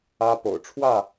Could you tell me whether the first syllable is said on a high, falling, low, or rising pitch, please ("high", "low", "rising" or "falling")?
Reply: high